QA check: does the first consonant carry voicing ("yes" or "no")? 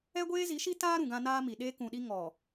yes